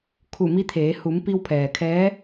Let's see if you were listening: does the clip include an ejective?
no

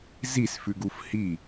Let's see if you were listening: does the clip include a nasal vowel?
no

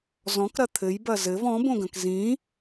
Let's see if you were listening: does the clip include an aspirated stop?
yes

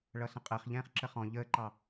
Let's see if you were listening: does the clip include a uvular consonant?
yes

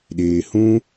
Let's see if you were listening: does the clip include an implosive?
yes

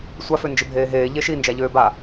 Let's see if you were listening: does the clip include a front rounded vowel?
yes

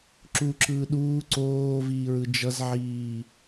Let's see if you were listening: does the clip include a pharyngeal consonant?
yes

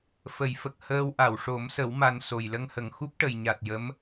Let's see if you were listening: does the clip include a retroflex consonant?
yes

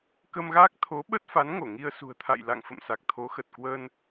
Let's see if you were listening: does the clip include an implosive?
yes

